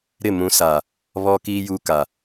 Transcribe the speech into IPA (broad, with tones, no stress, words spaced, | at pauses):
ɾɪ˦˨mũ˨˦sa˨ | βɔ˦kiː˦ juː˦ka˨